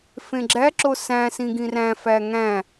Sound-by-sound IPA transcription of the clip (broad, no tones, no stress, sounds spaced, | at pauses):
f ẽ ɡ͡ǁ æ ǁ o s æ̃ s ĩ ɡ ĩ r æ̃ f æ ŋ æ̃